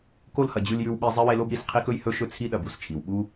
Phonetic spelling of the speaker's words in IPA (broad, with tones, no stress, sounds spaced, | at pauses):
k o˥ l h ɐ˨ d͡ʑ ʉ˦ l j ʉ˦ w ɓ i˦ zˤ e˥ w e˦ l o˥ b ɾ i˩ s qʰ i˥ k ɵ˥ j h ɵ˦ ʃ ɵ˦ t͡sʰ i˦ ɗ ɐ˨ b u˩ s t͡ʃʰ i˩ w ɓ u˥